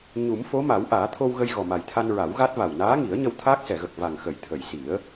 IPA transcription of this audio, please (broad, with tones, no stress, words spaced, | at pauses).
ɲu˨˩˦mfo˧˥ ma˨˩˦wʔaː˨˩˦t̪ʰo˧wɣə˧j ɣɔ˨˩ma˨˩jt̪ʰa˧n ɹa˨˩˦wɣa˦˥t̚va˨˩w naː˧˥ŋi˨˩˦ə̯ ɲə˧wt̪ʰaː˦˥k̚sɛ˨˩˨ɣə˨˩k̚ va˨˩ŋxə˨˩˨j t̪ʰə˨˩˨jsi˨˩˦ə̯